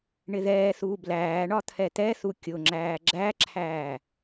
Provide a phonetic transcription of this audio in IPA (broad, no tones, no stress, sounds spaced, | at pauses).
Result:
ɳ ɪ ð ɛː θ uː b l æː ɳ ɒ t̪ʰ ɛ t̪ ɛ θ u kʲ ʊ ŋ͡ǁ æː ɡ͡ǁ æ ǁʰ æː